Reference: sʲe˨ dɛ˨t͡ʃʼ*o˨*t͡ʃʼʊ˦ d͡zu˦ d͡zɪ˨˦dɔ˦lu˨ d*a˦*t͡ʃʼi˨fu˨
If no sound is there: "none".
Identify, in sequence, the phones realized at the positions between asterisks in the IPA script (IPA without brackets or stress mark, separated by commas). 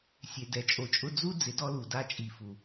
o˨, a˦